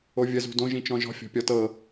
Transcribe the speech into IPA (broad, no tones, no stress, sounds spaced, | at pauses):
o vʲ ə z ṳ d õ ʒ ĩ t͡ʃ ɔ̃ ʒ ɔ̤ fʲ ɔ̤ pʲ ɔ t ɤ